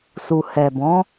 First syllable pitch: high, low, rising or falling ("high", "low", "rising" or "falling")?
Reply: low